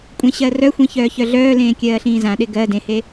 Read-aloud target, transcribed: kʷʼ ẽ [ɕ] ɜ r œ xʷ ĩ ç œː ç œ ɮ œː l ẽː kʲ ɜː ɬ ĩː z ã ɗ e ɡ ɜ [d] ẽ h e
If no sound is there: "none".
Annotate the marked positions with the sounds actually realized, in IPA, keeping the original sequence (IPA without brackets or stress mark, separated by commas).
ɕ, d